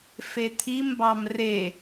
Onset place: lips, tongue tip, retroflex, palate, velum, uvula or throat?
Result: lips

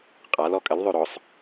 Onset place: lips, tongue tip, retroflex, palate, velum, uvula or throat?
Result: uvula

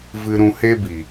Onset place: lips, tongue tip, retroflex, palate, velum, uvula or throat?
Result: lips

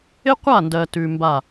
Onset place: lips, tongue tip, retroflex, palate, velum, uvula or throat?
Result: uvula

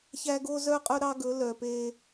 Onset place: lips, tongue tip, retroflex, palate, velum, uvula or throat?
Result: palate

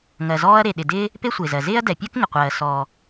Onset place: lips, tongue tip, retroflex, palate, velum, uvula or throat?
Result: velum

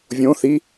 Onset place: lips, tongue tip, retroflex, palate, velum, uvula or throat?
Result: lips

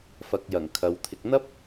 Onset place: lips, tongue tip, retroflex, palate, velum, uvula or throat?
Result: lips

